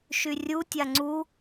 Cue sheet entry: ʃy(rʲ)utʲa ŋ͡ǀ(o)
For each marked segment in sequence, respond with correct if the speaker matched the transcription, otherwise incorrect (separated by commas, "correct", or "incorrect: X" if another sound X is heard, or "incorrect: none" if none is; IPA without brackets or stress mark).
correct, incorrect: u